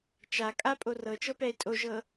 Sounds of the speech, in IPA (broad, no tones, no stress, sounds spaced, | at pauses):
t͡ʃ a kʼ a pʼ o r ɤ t͡ʃ ɤ p ɛ e̯ tʼ o ʒ ɤ